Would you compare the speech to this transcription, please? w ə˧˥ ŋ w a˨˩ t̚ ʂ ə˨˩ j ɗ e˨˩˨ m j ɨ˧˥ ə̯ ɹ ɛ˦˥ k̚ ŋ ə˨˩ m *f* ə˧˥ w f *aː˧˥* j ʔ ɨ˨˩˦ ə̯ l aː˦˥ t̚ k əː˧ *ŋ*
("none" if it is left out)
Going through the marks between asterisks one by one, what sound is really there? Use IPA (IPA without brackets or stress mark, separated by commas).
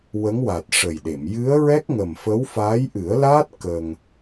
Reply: f, aː˧˥, ŋ